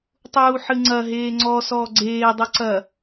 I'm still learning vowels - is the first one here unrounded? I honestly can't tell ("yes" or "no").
no